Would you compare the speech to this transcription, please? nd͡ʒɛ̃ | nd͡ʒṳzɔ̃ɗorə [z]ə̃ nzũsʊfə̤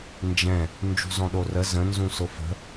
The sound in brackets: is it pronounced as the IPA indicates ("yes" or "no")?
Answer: yes